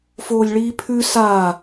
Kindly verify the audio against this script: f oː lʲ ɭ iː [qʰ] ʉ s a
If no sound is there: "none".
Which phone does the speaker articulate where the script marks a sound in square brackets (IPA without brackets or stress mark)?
pʰ